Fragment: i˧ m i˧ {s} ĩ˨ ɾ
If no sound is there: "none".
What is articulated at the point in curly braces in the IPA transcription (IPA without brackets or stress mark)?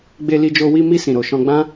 s